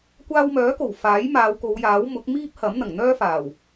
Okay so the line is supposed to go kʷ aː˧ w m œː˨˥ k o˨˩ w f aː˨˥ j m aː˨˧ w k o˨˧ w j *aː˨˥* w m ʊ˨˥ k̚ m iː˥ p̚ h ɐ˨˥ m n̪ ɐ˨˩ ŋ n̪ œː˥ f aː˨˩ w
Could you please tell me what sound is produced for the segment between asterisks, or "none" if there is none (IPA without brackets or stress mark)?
aː˨˥